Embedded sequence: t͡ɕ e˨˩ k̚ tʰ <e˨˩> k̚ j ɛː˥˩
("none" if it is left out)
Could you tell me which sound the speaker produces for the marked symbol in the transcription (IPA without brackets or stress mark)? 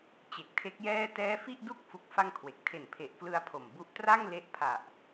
e˦˥